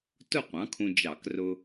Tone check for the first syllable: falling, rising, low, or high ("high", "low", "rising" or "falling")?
falling